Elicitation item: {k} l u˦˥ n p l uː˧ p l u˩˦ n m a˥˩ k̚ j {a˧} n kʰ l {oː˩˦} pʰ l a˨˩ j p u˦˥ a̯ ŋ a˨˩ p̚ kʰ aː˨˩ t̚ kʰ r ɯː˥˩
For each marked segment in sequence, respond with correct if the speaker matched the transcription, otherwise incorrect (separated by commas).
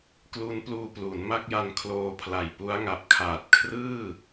correct, correct, incorrect